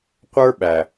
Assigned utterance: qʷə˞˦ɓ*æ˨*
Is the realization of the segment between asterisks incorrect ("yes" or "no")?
no